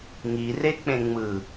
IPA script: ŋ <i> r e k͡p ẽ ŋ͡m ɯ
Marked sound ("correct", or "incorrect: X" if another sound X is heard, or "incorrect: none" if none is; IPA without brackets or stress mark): correct